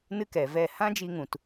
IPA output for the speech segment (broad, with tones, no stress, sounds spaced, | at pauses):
n ɨ˦ k ɛ˨ v ɛ˦˨ h ã˦ d͡ʒ i˧ ŋ ũ˨ t